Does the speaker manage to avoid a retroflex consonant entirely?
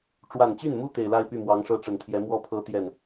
no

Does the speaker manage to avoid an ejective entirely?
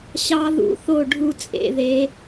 no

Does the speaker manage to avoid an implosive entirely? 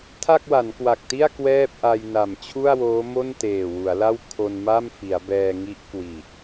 yes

